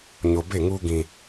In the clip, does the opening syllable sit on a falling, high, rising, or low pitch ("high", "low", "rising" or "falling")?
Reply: low